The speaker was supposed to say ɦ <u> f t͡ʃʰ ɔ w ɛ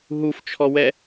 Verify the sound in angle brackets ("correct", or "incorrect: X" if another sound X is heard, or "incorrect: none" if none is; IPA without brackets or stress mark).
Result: correct